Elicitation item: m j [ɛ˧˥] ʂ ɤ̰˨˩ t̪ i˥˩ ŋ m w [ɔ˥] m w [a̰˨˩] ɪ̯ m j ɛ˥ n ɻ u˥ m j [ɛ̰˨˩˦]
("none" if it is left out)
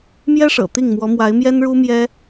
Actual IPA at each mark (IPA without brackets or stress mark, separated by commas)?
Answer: ɛ˥, ɔ˧˥, a˧˥, ɛ˥